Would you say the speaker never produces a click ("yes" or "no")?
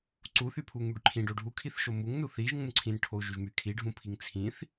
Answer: no